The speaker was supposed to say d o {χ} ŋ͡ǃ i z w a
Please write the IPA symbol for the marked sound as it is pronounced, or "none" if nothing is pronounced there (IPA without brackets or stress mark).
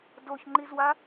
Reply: ç